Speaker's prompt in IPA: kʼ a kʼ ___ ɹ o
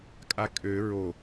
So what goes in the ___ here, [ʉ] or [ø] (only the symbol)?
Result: ø